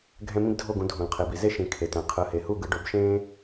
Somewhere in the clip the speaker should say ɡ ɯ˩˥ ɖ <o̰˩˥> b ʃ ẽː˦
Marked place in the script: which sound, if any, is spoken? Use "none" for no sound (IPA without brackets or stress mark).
o˩˥